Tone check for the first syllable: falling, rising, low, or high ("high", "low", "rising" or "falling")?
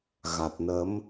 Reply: low